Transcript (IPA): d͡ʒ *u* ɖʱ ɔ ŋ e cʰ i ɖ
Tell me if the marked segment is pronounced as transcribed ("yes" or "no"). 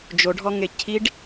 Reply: no